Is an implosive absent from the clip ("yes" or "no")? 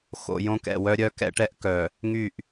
yes